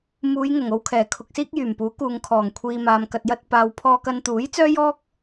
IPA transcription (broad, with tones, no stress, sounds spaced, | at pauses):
m uː˨˧ j ŋ ʊ˨˩ ŋ o˧ w kʰ ɛː˨˩ kʰ ʊ˧ k̚ s iː˥ k̚ j yː˨˩ m p uː˨˥ k uː˨ ŋ kʰ ɔː˨˩ ŋ kʷʰ iː˨ m aː˨ m k ɐ˨ t̚ j ɐ˧ t̚ p aː˨ w pʰ ɔː˧ k ɐ˧ n t̪ uː˨˥ j t͡s œː˥ j ɔː˥ k̚